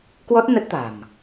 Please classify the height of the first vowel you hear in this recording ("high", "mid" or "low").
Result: mid